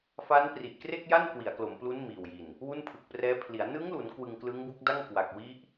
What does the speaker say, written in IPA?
fa˦˥npri˨˩ʔkre˥˩k̚ja˥˩n kwi˩˦a̯klo˩˦mplu˦˥n miː˨˩wji˨˩n | wu˥˩npʰɯ˨˩k̚prɛː˦˥pʰli˩˦a̯ nɯ˦˥ŋlu˩˦n kwɯ˧ŋklɯ˦˥ŋbu˦˥k̚da˥˩ŋ kwa˨˩k̚ wi˦˥ʔ

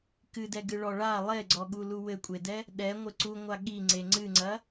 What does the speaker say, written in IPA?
kɨdɛɡɨ ɭɔɭa lˠeɡ͡ǀɔɠu luwɘkʷʼedɛ | ɗɛ ŋʷɘǀuŋʷa ɠiŋ͡ǀe ŋ͡ǀɨŋ͡ǀɐ

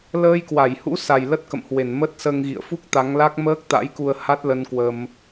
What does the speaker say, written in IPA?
ləː˧jkwa˧˩jhṵ˧˥sa˨˩j lə˦˥t̚kə̰˧˨mhwe˧˩n mə˦˥t̚səː˧ŋ ɣḭ˧˨ə̯fu˦˥k̚ t̪a˨˦ŋla˦˥k̚ məː˦˥k̚ t̪a̰˧˥jku˧ə̯ ha˦˥t̚lə˧nkwə˧m

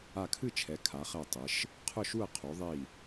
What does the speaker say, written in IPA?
a˧˩kʰɨ˥˨t͡ʃʰɛ˩˧ kʰa˩˧χɛ˧˩ tˤɪ˩˧ʃ | qʰʊ˥˨ʃu˥˨ɐ̯ qʰu˩˧ðˤi˧˩

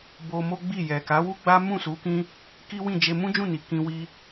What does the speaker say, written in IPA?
bo˧mo˦ɡ͡bi˦˨ jɛ˨ka˨˦wu˦ɡ͡ba˦ mũ˦˨su˨˦ kĩ˦ | ki˦wĩ˦˨d͡ʒe˧ mũ˦d͡ʒũ˦˨ni˨ kĩ˧ wi˧

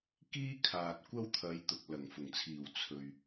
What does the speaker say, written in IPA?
kiː˥ kʰaː˨t̚kʷɐ˥wt̪ʰɐ˨˧j t̪ʊ˨k̚lɐ˨˩ŋfʊ˨˩ŋt͡sʰiː˨˩w t͡sʰɵ˨ɥ

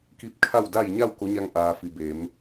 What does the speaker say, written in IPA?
ki˧˥p̚kʰa˥˨wda˥˨j ɲa˥˨w ko˧˥ɲa˧ŋ ʔaː˩ fi˩beː˩˧m

